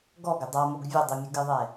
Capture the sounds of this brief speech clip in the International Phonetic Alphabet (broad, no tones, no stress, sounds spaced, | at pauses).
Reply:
ɡ ɔ ɡ ɪ dˤ a m o ɡ vʲ ʊ dˤ i mʲ ʊ ɡ ɪ ðˤ ɛ